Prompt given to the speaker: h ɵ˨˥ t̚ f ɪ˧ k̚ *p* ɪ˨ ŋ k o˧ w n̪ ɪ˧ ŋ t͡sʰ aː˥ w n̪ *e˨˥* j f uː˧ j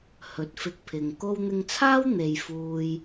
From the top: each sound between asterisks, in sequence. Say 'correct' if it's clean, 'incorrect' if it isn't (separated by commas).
incorrect, incorrect